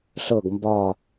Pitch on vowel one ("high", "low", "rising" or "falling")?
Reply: low